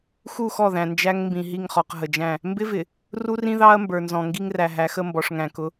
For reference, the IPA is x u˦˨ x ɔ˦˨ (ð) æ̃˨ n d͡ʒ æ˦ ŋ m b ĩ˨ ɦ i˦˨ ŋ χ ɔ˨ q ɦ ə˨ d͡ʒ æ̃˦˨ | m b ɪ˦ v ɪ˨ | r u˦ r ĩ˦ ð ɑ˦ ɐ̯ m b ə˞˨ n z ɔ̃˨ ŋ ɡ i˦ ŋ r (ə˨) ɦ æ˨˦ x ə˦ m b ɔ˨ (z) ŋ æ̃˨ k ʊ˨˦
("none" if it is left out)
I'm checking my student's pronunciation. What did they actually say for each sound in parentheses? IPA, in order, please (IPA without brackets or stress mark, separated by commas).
ð, æ˨, ʂ